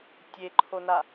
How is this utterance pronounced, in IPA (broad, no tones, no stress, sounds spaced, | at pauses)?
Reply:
tʲ e ǃʰ o n a